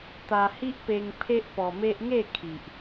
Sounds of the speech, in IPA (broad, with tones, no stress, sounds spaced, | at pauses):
t̪ a˧ h i˦ ʔ p e˧ ŋ pʰ e˦ ʔ p ɔ˧ m e˦ ʔ ŋ e˥˧ kʰ i˨ ʔ